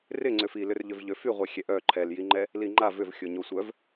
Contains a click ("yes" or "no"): yes